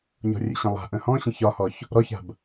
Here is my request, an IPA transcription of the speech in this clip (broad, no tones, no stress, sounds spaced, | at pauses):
ɲ ɔ̤ rʲ ə̰ ɕ ə̃ lˠ a̤ ʔ ə̃ h ɔ̃ ɕ ə̃ ç ɒ h ɔ ç | ɾ ɔ ç a̤ b